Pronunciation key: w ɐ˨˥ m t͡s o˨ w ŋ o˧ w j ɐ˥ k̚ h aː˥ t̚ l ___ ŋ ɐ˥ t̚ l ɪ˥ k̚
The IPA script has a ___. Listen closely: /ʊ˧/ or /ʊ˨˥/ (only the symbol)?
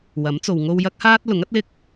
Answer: ʊ˨˥